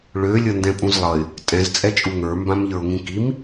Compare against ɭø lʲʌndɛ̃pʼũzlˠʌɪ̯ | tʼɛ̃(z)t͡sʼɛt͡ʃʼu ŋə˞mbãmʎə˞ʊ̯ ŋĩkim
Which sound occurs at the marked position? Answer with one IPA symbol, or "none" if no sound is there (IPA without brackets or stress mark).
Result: z